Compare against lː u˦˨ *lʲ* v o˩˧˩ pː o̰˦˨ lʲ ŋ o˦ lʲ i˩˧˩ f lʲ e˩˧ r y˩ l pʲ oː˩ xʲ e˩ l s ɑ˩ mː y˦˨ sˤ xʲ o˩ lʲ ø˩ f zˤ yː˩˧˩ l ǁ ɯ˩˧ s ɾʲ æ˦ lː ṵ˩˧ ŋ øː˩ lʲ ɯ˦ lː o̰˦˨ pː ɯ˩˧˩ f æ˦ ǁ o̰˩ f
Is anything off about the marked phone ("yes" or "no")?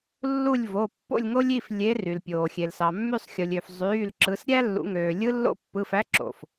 no